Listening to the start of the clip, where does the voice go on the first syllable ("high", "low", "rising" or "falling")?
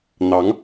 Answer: rising